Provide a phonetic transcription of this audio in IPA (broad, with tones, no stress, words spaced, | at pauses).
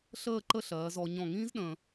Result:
ɬəː˥˧ǃə˥˧ɬɜː˩˧zɔ˩˧ ɲɔ̃˧˩ŋĩː˥z ɗə̃ː˧